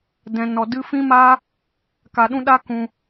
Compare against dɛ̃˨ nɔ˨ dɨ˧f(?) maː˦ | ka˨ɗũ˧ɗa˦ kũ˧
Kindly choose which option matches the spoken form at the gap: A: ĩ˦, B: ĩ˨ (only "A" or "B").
A